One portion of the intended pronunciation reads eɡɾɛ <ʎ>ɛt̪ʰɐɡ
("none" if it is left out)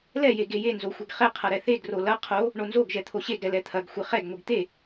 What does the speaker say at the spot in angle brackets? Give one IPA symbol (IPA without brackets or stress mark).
l